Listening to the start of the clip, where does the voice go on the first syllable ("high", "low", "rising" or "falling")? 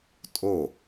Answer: falling